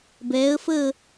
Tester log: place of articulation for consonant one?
labial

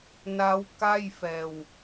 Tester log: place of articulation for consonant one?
alveolar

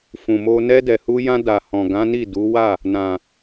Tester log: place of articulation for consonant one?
labial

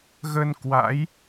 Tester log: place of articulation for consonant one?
velar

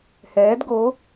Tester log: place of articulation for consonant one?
glottal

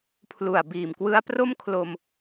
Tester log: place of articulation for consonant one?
labial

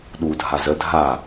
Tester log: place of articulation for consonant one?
alveolar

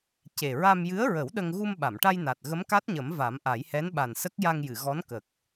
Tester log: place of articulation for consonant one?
palatal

